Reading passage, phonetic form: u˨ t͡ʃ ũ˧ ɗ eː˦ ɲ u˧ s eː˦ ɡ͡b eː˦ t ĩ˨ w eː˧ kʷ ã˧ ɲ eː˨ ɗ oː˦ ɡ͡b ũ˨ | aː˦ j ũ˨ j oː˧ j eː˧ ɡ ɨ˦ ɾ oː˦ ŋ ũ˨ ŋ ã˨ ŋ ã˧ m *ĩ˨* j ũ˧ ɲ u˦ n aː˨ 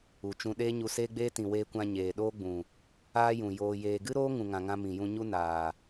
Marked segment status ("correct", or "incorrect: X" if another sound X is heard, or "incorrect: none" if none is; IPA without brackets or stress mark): correct